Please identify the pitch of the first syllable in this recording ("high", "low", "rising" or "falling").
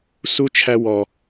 high